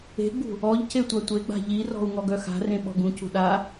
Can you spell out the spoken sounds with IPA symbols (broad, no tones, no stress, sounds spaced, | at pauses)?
e̤ ɡ͡b ṳ | ɔ ʎ c e tʷ a tʷ e ɡ͡b a̤ ʎ i r ɔ̤ u̯ ŋ ɔ ɡ œ x a̤ r ẽ ɓ ɔ̤ ɡ ũ c ṳ ɗ a